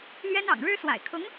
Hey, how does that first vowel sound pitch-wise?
high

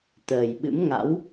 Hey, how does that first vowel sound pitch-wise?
low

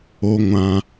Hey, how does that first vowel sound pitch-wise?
high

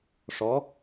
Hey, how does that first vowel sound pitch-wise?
rising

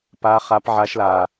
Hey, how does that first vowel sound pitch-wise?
high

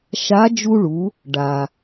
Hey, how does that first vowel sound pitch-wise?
rising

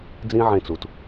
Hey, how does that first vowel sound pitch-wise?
high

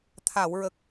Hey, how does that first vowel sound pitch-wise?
low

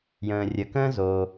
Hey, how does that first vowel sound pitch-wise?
low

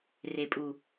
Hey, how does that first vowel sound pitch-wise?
low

